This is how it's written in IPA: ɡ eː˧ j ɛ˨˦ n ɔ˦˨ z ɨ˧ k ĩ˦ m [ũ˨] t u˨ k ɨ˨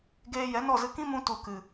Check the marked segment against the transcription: incorrect: ũ˧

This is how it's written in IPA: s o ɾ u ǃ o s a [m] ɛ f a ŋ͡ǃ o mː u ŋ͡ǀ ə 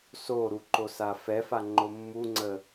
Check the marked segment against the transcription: incorrect: f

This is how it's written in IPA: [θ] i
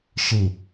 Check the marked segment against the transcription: incorrect: ʃ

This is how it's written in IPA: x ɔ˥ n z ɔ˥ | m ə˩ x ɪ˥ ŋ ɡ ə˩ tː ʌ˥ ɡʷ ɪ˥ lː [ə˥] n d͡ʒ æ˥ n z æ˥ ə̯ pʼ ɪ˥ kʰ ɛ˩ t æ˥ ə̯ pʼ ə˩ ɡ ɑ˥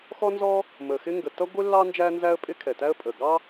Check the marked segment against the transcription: incorrect: ɑ˥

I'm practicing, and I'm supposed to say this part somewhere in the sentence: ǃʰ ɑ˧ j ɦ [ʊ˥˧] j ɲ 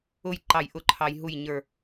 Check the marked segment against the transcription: incorrect: u˥˧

